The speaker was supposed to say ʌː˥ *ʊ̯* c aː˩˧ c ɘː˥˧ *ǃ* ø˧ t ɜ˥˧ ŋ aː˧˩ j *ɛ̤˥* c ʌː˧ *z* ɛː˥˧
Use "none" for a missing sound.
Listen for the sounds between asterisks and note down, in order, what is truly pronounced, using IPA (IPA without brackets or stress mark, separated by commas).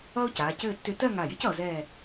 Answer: ʊ̯, tː, ɛ̤˥, z